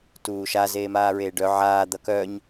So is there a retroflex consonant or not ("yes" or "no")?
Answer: yes